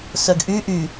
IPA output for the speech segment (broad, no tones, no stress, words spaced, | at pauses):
sœɡʔy ʔy